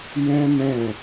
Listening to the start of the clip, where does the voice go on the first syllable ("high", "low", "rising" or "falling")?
high